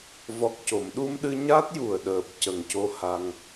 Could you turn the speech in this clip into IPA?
v ɔ˨˩ k̚ c o˨˩˨ m ɗ u˧ m ɗ ɨ˧ ɲ a˦˥ t̚ j u˨˩ ə̯ ɗ əː˨˩ p̚ c ə˨˩ ŋ c o˧ h a˧ ŋ

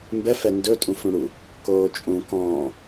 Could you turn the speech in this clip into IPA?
m b ɛ f ɛ n d ɵ tʼ ũ f ɽ ũ ɽ u | k oː t͡ʃʼ ũ k ɔ̃ː

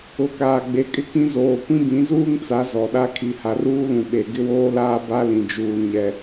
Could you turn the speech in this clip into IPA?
ʊ˨ k aː˨ ɡ͡b e˨˦ kʼ ɪ˦ k ĩ˦ z oː˨ kʷ ĩ˦ b ĩ˨˦ z uː˦ ŋ t͡s a˨˦ z ɔ˨ ɗ a˦ kʰ i˨ h a˨ r uː˦ l ũ˨ ɓ e˨ ɡ ɪ˦ w oː˦ l aː˦ b a˦ l ĩ˨ d͡ʒ uː˨ ɲ ɛ˨

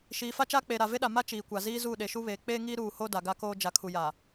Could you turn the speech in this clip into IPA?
ʃ iː˨ f a˦ t͡ʃ aː˦ k͡p eː˨ ɾ a˨ v e˦ ɗ a˨ m a˦ t͡ʃ iː˨ kʷ a˨ z iː˦ z uː˦˨ ɗ e˨ ʃ u˦ β eː˨ k͡p eː˦ ŋ iː˦ ɾ uː˦˨ h o˦ d a˨ ɡ a˦ k oː˦ d͡ʒ a˨ kʰ u˨ j a˨

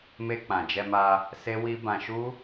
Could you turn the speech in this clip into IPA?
m e˧ k͡p ã˨ d͡ʒ ɛ˧ m a˧ | s e˦ w i˦ b ã˧ ʃ u˦

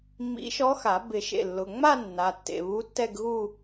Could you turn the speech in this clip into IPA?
mː ḭ˧˥ ʃ ɔ˧˥ x a˨˩˦ b ɪ˨˩˦ ʃ ḛ˩˧˩ lː ʊ˩˧˩ ŋ͡m a˥˧ nː a˩˧˩ tː ḛ˩˧˩ β u˧˥ tː ɛ˥˧ ɡ ɣ u˥˧

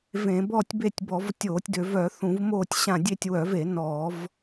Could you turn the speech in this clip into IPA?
v ẽ˧˩˧ b ɔː˦˨ tʲ b e˦˨ tʲ b ɔ˧˩˧ v tʲ oː˧˩˧ tʲ d ø˧˩˧ v œ˧˩˧ θ ũ˧˩˧ v m oː˦˨ tʲ ɕ ã˦˨ dʲ e˦˨ tʲ w œ˧˩˧ v e˧˩˧ n ɔː˧˩˧ v

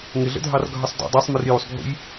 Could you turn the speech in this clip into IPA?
ŋ ɪ ɮ ə̰ dʱ ɑ r ɡʱ ʌ sˤ d ɔ̰ dˤ æ sˤ m ɪ r j u sˤ ɡʱ ṵ j

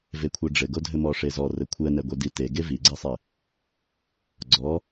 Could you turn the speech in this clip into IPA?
v e kʷʰ ɛ ɖ͡ʐ ɘ ɡ o dʱ ɘ m ɔ ʂ e z ɔ r ɘ kʷʰ ɛ n ɛ ɡʷ e d i t e ɡ e v i ɡ͡ǀ ɛ sˤ e | ɡ͡ǀ ɔ

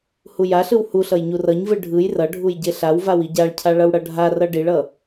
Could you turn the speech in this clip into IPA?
h u j a ɬ ɯ w h u ɬ ʌ j ɲ u r ʌ ɲ v ɯ ɖʱ ɯ j r ʌ ɖʱ u j ɟ e ɬ a w v a w i ɟ a ɭ cʰ a ɭ ʌ w ɽ ʌ ɖʱ a r ʌ ɖ i ɭ ʌ

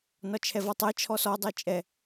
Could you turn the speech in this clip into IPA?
n ɒ t͡ʃʰ ɛ v ɔ tˤ ɜ t͡ʃʰ ɔ s ɔ dˤ ɜ t͡ʃʼ ɛ

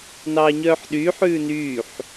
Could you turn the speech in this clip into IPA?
n ɑː ɲ œː ħ ɗ yː ħ ʉː n yː ħ

